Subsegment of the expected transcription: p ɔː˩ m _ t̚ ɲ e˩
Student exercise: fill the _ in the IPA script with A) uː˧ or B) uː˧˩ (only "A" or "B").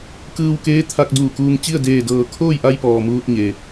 A